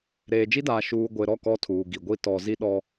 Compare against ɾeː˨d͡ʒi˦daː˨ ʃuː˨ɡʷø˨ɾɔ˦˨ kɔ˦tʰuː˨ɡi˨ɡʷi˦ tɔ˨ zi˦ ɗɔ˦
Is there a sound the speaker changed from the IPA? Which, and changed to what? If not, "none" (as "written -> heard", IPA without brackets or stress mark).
ø˨ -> e˨